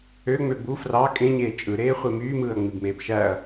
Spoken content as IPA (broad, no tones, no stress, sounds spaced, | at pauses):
ø ŋ͡m ø b u f r ɑ kʼ ẽ ɲ eː t͡ʃʼ ɯ ɾ eː χʷ e m yː m ɯː ɐ̯ ŋ͡m i b m eː b ʃ æ ɐ̯